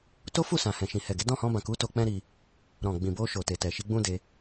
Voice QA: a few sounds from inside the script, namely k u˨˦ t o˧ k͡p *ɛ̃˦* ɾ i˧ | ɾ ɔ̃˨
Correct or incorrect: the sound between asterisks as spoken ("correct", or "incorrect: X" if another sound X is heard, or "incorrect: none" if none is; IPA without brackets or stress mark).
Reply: correct